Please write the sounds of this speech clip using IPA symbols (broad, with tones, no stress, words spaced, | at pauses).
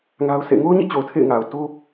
ŋa˦ʊ̯sḛ˦˨ ŋo˦ʊ̯ɲḭ˦˨t͡ɕo˨ʊ̯ tʰḛ˦˨ɪ̯ŋa˨ʊ̯ to˦